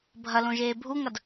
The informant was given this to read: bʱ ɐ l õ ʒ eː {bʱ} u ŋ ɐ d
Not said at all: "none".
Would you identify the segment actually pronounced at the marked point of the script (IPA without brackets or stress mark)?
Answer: bʱ